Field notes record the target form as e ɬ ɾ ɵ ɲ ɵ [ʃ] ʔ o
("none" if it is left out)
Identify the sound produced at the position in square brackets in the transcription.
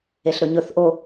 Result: θ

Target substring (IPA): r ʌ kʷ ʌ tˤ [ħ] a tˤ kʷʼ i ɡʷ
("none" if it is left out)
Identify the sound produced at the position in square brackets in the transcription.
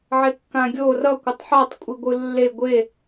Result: ħ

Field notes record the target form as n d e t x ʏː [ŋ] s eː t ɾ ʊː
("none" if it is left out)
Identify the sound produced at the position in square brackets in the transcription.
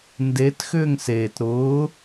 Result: ŋ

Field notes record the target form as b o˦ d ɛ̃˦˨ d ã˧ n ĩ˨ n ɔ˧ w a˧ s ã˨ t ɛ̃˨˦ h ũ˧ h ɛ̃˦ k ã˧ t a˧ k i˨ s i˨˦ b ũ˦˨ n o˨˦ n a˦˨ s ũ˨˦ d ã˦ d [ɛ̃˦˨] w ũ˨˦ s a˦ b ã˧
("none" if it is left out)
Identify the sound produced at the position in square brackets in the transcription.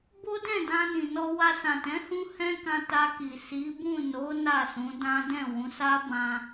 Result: ɛ̃˦˨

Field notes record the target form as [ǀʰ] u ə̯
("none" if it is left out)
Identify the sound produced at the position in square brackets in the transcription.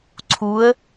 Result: ǀʰ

